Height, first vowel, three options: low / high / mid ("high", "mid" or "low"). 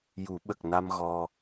high